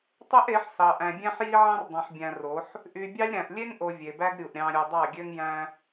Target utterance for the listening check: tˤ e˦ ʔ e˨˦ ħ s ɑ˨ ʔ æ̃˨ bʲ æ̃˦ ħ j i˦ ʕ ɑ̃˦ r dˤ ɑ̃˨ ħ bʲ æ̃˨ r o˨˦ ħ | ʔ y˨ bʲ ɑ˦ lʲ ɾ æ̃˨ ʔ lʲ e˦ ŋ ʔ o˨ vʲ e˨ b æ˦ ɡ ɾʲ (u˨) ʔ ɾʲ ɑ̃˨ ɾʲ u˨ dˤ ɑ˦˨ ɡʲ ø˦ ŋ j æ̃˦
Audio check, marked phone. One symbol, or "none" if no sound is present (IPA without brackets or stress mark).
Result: u˨